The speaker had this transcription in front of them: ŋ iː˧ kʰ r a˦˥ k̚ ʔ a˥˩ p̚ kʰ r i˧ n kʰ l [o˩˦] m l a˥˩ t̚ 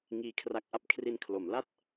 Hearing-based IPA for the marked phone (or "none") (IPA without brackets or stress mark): o˩˦